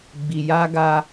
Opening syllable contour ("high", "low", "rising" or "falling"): low